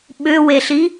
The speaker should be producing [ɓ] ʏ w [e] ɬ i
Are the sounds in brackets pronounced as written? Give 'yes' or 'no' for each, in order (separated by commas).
yes, yes